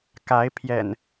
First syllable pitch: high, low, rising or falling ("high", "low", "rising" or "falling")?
rising